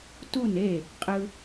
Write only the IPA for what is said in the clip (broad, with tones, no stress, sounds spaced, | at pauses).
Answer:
t u˦˨ n e˦˨ | qʼ ɯ˧